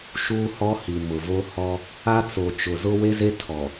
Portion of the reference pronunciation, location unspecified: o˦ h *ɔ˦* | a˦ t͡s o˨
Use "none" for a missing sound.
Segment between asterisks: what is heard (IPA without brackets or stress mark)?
ɔ˦